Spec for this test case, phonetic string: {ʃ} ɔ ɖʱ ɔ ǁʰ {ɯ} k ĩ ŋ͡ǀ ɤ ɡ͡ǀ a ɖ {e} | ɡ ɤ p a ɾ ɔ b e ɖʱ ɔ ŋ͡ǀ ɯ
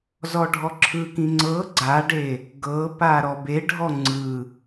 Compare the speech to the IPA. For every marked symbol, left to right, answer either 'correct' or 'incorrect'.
incorrect: z, correct, correct

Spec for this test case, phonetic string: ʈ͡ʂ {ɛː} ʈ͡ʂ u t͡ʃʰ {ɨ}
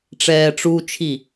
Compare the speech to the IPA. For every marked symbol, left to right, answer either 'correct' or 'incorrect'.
correct, incorrect: i

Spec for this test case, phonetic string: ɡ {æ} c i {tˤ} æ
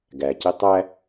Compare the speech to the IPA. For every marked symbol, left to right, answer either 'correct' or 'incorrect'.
correct, correct

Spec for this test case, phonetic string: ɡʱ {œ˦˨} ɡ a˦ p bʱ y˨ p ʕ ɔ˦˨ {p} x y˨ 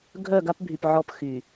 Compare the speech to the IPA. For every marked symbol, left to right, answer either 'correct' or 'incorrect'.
correct, correct

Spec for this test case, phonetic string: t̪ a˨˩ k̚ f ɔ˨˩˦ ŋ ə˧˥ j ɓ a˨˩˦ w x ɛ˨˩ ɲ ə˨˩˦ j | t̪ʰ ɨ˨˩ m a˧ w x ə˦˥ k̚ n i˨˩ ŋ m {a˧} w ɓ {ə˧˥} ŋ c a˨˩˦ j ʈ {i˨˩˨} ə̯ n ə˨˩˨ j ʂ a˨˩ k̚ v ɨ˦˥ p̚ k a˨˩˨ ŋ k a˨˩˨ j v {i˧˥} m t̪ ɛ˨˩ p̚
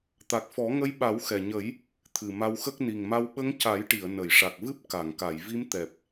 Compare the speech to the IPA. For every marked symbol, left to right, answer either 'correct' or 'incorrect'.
correct, correct, correct, correct

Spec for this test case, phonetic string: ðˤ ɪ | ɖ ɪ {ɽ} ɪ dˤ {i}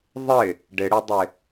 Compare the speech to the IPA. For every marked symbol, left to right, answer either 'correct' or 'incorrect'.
correct, incorrect: ɪ

